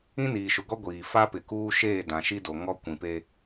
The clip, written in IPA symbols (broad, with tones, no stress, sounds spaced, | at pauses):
ĩ˦ n iː˨ ʃ ʊ˨ ɡ ɔ˦ ɡʷ iː˨ f a˦ p ɪ˨ k uː˦ ʃ eː˦˨ d ã˨ ʃ i˦ d o˨ ŋ ɔ˦ kʷ ĩ˨ p e˦